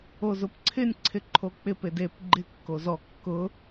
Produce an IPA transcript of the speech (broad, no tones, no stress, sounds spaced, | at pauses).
o z ʊ p ǀʰ ɪ nʲ ǀʰ ɪ ǃʰ o k͡p ɪ p e d e p ɡ͡ǃ ɪ kː o z ɔ kː ʊ